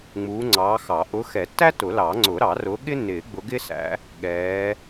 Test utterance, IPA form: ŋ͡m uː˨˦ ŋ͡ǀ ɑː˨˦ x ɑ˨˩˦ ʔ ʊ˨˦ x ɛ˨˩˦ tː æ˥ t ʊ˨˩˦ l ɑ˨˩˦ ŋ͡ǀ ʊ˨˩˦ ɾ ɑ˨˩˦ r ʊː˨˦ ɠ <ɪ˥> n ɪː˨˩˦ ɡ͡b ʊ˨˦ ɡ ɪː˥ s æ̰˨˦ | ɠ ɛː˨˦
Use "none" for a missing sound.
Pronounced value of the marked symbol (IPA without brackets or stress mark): ɪ˥